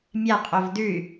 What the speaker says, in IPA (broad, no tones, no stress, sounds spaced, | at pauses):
mʲ a qʼ o v d ʉ y̯